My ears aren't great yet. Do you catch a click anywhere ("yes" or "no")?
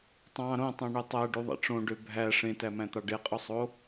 no